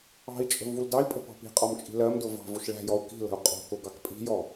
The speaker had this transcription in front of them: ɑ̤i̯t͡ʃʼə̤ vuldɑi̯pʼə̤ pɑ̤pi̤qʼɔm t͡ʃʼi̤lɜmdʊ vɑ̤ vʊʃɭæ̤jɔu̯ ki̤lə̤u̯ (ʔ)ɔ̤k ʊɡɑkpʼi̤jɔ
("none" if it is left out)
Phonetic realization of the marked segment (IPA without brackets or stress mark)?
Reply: qʼ